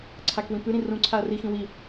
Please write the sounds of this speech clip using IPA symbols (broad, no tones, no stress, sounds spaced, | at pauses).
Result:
ǀʰ a k w ĩ p ʉ ɾ ĩ r ũ ǀʰ a ɐ̯ r i x ĩ w i